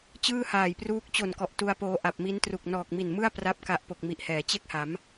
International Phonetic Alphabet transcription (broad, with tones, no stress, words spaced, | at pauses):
t͡ɕɯː˥˩haː˨˩jpruː˦˥k̚ t͡ɕo˨˩nkɔ˨˩ʔ tu˧a̯poː˧ ʔa˨˩p̚mi˦˥ntru˨˩k̚ nɔː˨˩k̚mi˨˩nmɯ˥˩a̯ pra˥˩p̚ka˦˥ʔpo˨˩k̚ mi˨˩ʔhɛː˩˦t͡ɕe˥˩k̚ha˩˦m